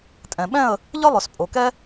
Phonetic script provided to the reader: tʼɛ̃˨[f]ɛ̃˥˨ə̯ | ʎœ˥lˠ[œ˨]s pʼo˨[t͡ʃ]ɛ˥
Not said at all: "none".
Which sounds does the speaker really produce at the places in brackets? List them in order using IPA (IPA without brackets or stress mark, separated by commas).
ɓ, œ˨, k